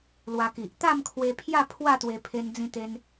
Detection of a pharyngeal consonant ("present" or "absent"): absent